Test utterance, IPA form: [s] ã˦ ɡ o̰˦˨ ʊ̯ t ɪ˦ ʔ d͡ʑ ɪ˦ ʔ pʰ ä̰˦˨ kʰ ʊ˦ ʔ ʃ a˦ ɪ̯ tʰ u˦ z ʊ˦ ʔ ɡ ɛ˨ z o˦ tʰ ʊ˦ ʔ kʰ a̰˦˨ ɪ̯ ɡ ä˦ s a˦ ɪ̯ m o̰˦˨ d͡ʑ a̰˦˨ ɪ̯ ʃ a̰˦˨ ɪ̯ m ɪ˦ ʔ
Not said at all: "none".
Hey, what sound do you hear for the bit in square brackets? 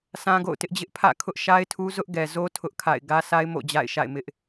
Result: s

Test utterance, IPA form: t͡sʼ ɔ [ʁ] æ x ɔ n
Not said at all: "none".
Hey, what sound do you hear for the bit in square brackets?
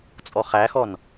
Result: χ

